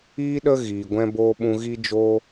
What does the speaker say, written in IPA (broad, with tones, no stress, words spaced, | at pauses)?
iː˦ɗə˦ ɣiː˨ɡʷɛ̃˦boː˦ ɓũ˧ɣi˦d͡ʒoː˦